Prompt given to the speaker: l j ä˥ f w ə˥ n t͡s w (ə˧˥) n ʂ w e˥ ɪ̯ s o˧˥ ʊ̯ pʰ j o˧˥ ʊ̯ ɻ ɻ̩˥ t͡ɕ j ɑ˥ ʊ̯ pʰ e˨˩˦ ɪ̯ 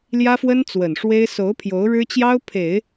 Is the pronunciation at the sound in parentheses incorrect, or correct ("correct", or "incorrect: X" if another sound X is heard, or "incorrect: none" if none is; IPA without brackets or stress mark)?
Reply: incorrect: ə˨˩